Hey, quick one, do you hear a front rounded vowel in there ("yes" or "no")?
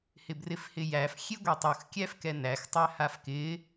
no